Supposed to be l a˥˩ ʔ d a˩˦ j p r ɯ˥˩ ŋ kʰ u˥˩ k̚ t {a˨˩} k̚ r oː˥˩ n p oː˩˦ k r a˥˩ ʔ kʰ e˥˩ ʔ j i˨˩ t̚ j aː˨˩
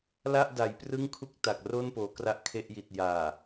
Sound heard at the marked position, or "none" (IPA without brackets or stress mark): a˨˩